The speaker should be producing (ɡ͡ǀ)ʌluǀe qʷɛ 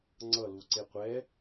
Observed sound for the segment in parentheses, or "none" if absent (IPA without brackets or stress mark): ŋ͡ǀ